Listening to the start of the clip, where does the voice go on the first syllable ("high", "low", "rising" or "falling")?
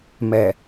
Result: low